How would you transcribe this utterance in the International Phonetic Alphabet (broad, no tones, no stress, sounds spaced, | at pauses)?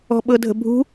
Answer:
ɔ̤ ɓ ɤ dʱ ə̤ bʱ ṳ